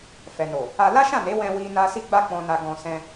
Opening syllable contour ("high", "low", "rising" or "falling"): low